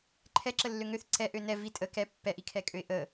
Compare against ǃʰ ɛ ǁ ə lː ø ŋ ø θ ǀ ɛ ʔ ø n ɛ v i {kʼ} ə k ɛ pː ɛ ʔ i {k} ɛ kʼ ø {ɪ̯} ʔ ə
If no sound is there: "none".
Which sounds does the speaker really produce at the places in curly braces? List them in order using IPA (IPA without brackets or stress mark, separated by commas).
tʼ, kʰ, ɪ̯